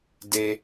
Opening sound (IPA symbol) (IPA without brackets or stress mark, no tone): d